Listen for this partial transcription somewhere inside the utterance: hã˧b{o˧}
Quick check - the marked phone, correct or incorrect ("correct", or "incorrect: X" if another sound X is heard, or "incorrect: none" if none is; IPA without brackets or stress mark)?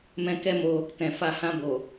incorrect: o˨